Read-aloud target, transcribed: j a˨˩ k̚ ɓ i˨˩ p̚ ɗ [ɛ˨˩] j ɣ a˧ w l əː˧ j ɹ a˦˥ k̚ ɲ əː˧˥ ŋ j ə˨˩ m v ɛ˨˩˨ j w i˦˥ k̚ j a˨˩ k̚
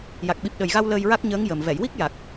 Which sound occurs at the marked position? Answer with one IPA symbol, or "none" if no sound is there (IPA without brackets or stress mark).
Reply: ə˨˩